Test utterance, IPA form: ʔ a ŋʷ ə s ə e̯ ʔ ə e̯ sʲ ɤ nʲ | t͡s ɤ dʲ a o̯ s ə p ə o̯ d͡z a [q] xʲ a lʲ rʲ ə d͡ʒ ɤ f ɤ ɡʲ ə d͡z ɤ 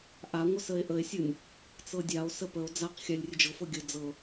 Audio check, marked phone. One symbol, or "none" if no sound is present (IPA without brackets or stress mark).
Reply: q